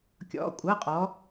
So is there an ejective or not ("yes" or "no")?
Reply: yes